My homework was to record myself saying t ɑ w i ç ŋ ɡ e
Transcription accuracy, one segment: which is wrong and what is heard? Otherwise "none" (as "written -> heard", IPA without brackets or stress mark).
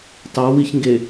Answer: none